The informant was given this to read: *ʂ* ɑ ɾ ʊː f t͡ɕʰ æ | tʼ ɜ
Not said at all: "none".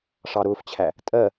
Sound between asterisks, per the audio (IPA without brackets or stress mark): ʂ